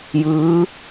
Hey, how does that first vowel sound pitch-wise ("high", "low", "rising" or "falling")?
rising